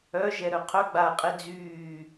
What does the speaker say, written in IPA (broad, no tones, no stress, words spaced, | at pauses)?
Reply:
œ ʒɛɾœqʰœ ɡ͡ba qʼed͡zyː